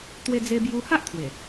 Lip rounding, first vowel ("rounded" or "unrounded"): unrounded